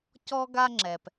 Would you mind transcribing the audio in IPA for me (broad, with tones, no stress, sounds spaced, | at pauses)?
c ɔ˦ ɡ a˦ ŋ͡ǁ ɛ˨ p